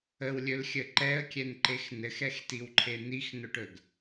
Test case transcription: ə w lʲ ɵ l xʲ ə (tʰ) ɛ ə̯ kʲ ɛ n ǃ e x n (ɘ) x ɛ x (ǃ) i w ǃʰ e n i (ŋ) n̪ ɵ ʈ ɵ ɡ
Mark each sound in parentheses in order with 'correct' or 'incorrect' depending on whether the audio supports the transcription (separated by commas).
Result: incorrect, correct, incorrect, incorrect